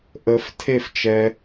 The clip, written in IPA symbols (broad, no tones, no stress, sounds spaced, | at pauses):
ʔ ə f tʰ e f t͡ʃ ɛ